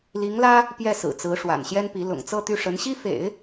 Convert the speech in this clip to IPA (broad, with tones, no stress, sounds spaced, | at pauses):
l i˧˥ ŋ l ä˥ | p j ɛ˥˩ s ɹ̩˨˩ t͡s ɹ̩˧˥ ʂ w a̰˨˩ n ɕ j ɛ˥ n p i˧˥ l ʊ̰˨˩ ŋ t͡s ɤ˥˧ t̪ y˥˩ ʂ ə˧˥ n ɕ i˥ f ḛ˨˩˦ ɪ̯